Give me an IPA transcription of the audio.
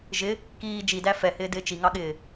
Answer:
ʒ ɪ | k iː d͡ʒ i d æ f ɛ h ɪː d ɪː t͡ʃ i ŋ ɑ ɠ ɪː

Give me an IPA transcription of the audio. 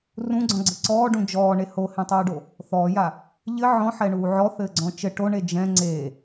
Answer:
r ũ ɡ͡ǀ ɔ̃ ɡ͡ǀ ɘ ǀ ɔː ɖ ũ d͡ʒ ɔː ɳ e h o h ẽ tˤ uː ɖ o | θ ɔː j a | ʎ ɘ ʕ ɔ̃ ħ ɛ ɳ uː ʕ ɔ θ ɘː ɡ͡ǀ ɔ̃ t͡ʃ ɘ ʈ o ɳ e d͡ʒ ɛ̃ ŋ͡ǀ e

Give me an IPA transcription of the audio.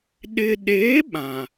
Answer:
ɗ ɪ˨ ɗ e˨˦ ɓ ã˨

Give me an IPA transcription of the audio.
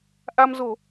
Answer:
ʔ a˧ m z o˧˩˨

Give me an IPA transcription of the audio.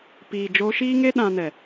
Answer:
p iː˨ d͡ʒ oː˧ ʃ iː˦ ŋ e˦ ɗ ã˧ n ɛ˨

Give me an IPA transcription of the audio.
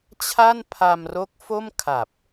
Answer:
t͡ɕʰ a˥˩ n pʰ a˧ m r o˦˥ k̚ f o˥˩ m kʰ a˨˩ p̚

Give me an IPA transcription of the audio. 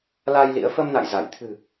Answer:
l aː˧ j l ḭ˧˥ ə̯ f ə˧ m n a̰˧˨ j z a˧˩ j t̪ʰ ɨ̤˨˩

